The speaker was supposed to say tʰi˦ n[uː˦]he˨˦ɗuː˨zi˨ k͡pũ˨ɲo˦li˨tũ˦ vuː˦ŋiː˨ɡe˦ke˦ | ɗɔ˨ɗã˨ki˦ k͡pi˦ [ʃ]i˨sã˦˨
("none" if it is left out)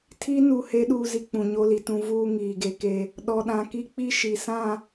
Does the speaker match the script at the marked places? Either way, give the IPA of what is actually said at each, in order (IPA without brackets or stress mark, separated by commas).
uː˨, ʃ